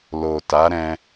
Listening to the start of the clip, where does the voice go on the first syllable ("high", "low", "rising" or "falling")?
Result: low